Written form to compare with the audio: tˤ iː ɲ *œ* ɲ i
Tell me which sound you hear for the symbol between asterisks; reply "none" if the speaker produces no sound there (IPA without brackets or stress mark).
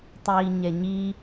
ɛ